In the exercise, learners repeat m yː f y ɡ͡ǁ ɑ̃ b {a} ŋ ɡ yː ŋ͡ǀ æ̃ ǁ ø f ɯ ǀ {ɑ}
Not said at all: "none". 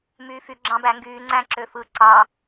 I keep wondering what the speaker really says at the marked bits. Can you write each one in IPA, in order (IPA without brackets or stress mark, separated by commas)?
æ, ɑ